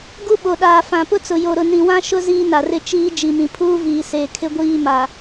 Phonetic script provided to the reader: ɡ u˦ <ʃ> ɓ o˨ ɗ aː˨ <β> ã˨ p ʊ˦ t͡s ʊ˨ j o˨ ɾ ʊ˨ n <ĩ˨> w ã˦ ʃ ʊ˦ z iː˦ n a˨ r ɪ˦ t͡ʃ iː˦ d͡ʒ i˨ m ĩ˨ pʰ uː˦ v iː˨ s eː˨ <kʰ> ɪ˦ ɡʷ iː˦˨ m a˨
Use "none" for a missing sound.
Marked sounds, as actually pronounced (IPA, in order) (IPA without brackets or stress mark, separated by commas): none, f, ĩ˨, kʰ